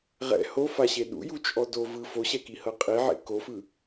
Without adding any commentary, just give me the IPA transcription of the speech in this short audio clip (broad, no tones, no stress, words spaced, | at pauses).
ʁɛ̰ hofaɕe ɗṵjut͡ʃʼɔ do vɯ foɕɛkihɤ qʼiʕḛ kofɯ